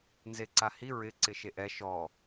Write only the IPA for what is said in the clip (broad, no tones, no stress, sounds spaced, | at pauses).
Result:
n z e ǀ a h i ɹ ɪ ǀ ɪ ʃ e ʔ ɛ ʃ ɔ